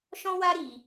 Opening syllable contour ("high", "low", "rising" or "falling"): high